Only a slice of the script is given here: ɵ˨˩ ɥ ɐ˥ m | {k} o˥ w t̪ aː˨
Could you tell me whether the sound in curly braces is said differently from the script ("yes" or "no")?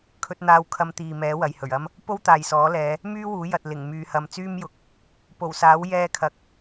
yes